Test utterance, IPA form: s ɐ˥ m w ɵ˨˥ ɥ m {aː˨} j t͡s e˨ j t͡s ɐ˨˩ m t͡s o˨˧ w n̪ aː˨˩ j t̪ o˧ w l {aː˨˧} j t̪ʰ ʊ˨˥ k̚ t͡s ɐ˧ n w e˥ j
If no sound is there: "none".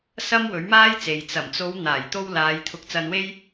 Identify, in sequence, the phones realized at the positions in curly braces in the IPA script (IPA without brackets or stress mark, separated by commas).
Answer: aː˥, aː˨˧